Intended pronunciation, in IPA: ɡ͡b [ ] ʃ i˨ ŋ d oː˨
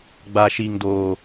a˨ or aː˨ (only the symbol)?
a˨